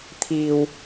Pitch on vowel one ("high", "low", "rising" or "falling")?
low